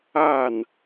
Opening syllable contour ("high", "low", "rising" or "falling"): falling